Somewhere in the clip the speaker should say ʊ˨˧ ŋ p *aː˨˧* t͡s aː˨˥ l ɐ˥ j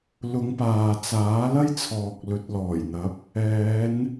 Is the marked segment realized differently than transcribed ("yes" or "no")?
yes